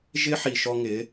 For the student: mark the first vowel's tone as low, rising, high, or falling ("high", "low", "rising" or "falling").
high